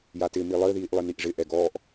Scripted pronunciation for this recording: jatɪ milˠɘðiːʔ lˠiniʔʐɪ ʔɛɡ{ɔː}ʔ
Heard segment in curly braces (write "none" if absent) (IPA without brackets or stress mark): ɔː